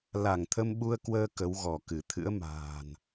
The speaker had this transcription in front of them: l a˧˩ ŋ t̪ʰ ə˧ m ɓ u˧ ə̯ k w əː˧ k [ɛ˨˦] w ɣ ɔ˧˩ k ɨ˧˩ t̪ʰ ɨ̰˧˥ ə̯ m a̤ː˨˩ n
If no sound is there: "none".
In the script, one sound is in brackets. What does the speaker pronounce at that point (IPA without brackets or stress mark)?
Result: ə˨˦